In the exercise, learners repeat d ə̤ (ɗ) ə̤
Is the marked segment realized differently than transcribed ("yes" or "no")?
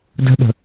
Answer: no